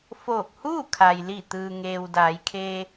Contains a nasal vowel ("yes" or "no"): no